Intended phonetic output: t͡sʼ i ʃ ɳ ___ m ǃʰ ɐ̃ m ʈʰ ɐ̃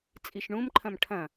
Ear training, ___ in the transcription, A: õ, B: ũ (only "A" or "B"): B